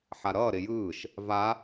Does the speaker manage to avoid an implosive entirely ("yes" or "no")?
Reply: yes